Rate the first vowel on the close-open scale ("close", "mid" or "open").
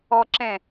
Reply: mid